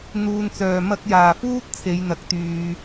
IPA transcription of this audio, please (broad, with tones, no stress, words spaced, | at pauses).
n̪uː˨nt͡sœː˨˩ mɐ˧k̚jaː˨˩fuː˥t̚ t͡sʰe˨˥jn̪ɐ˨˥k̚t̪yː˨